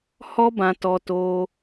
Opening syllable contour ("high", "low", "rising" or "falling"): high